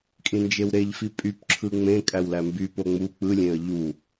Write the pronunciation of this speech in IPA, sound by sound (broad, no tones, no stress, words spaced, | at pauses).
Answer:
kʼĩnd͡ʒewɾeʎfi pʼypǁʰɯ ŋ͡mẽ kʼæwlæmby poŋ͡mu k͡pɯlʲẽə̯ ʎu